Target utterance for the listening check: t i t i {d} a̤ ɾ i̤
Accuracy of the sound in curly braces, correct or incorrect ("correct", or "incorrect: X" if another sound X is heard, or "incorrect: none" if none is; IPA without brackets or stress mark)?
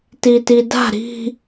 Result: correct